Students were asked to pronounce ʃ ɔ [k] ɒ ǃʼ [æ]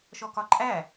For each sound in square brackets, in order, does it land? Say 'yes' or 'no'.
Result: yes, yes

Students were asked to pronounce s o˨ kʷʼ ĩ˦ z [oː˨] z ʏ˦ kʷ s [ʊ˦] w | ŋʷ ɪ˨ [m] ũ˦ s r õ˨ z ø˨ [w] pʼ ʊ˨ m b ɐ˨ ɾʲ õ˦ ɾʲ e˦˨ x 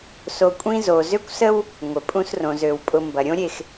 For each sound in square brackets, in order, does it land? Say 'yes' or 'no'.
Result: no, no, no, yes

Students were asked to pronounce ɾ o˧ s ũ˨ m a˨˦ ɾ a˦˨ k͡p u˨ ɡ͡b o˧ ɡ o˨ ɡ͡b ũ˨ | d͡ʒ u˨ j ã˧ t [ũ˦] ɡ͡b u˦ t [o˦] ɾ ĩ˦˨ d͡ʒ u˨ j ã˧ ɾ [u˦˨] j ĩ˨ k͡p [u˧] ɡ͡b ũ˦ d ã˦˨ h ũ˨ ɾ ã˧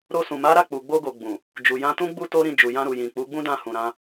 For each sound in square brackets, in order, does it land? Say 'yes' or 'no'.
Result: yes, yes, no, no

